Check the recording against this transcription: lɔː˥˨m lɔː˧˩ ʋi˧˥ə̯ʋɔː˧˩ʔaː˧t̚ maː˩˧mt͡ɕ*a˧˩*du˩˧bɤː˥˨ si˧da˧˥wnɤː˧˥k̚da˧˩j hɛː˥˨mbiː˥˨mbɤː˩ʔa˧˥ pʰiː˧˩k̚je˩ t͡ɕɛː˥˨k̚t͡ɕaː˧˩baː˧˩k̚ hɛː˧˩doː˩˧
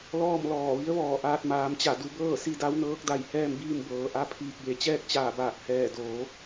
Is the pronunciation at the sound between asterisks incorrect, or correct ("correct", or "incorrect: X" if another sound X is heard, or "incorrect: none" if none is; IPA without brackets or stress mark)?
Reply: correct